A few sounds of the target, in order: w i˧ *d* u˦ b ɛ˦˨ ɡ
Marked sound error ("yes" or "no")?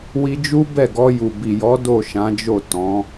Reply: yes